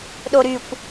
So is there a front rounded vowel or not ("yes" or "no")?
yes